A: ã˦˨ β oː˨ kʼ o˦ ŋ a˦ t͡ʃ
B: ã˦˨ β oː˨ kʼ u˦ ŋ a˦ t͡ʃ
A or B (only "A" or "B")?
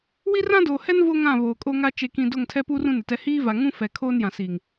A